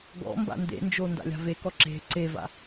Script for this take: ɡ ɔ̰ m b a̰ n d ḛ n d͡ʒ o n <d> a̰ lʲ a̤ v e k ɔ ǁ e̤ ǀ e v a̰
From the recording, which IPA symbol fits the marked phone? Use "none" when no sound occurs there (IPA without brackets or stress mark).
d